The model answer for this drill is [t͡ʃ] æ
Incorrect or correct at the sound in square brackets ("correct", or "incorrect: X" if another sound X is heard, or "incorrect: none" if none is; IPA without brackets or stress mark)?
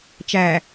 correct